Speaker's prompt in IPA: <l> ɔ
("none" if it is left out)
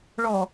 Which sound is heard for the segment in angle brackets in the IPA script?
ɭ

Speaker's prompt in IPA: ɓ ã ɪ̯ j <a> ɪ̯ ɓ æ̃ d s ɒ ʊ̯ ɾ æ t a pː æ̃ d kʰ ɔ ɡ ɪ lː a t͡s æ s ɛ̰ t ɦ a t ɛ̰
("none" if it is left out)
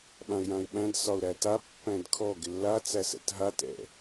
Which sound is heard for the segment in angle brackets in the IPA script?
ã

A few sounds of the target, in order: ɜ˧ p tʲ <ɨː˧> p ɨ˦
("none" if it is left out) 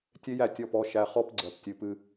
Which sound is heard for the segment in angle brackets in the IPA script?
ɨ˧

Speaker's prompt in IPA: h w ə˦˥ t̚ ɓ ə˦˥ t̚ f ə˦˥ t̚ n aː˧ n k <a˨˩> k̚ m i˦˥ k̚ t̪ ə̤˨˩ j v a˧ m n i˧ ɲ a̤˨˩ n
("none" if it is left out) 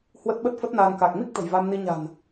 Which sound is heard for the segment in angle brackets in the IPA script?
a˨˩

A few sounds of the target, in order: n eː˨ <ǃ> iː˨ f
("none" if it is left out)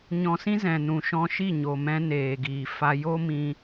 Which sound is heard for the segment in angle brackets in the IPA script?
ɡ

